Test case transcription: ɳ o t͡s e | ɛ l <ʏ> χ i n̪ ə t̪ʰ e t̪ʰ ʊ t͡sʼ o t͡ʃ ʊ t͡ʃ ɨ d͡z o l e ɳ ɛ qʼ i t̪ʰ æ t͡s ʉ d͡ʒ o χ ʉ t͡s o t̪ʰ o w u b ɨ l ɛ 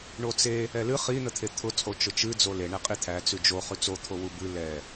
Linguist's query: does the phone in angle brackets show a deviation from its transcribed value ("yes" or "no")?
yes